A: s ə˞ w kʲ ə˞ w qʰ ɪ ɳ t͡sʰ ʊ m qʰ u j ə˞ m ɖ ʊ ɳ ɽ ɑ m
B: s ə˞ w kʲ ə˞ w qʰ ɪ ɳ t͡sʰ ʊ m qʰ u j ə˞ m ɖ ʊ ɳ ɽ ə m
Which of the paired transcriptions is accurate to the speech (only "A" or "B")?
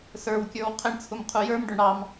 A